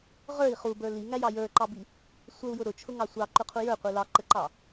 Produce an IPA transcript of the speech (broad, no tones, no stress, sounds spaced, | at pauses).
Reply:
ʁ ə˞ i̯ χ u b ə˞ l i ŋ æ j ɑ j ə˞ ǃ ɑ b i | sʷ ə u̯ j ʊ ɾ ʊ t͡ʃʰ ʊ ŋ ɑ sʷ ɑ ǃ ʊ qʰ u j ə˞ qʷ i l ɑ ǃ ə ǃ ɑ